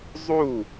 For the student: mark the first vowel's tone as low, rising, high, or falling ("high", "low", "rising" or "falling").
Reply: falling